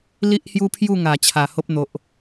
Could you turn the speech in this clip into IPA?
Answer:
l i˦ ʔ h j u˦ pʰ j u˥˧ ŋ a˨˩ t͡ɕʰ a˨˩ h o˦ p̚ n̪ o˨ ʔ

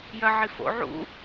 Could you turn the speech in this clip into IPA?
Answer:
j ɐ ʕ i f o̰ ʕ ṵ

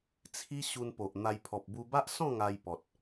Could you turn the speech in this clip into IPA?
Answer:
t͡sʰ i˦ ɕ u˧ n p o˨ ʔ n̪ a˧ j pʰ ɔ˨ p̚ b u˧ b a˦ ʔ s ɔ̃˥˧ ŋ a˧ j p ɔ˨ t̚

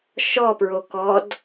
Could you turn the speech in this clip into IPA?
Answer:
ʃ ɔ p ɹ o k ɔ d

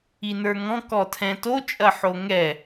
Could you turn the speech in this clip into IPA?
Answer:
i n ə˞ ŋ ɔ̃ k ɔ tʰ ɛ̃ t o t͡ʃʼ ɐ ħ o ŋ ɛ

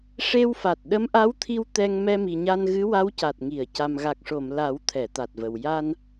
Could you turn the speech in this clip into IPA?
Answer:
ʂ e˧ w f a˨˩ t̚ ɗ ə˧˥ m ʔ a˧˥ w t̪ʰ i˧ w t̪ ɛ˧ ŋ m ɛ˧ m i˨˩ ɲ a˧ n ɣ ɨ˧˥ w a˧˥ w c a˨˩ t̚ ŋ i˨˩˨ ə̯ c a˨˩ m ɣ a˨˩ k̚ ʂ o˨˩˨ m l a˨˩˦ w t̪ʰ ɛ˨˩˨ t̪ a˨˩ t̚ v ə˨˩ w j a˧ n

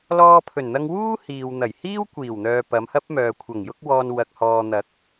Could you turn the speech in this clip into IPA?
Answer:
l ɔː˧ pʰ ɵ˨˩ n n̪ ɐ˧ ŋ w uː˥ h iː˨ w n̪ ɐ˨˩ j h iː˥ w kʷ iː˨˩ w n̪ œː˨ p ɐ˨˧ m h ɐ˥ p̚ m œː˨ kʷʰ ɐ˨˩ ŋ j ʊ˥ k̚ w ɔː˧ n w ɐ˨ k̚ h ɔː˨ n̪ ɐ˨˥ k̚

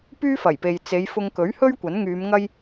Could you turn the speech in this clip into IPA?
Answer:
p yː˥ f ɐ˨˩ j p e˨ j t͡s e˨˧ j f ʊ˧ ŋ k ɵ˨˥ ɥ h ɵ˥ ɥ kʷ ɐ˨˥ n ŋ yː˨˧ m ŋ ɐ˥ j

